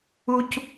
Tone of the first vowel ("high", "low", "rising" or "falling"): high